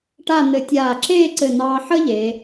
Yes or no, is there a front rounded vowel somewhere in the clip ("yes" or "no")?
no